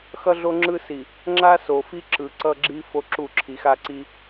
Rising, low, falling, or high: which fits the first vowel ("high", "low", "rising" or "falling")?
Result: high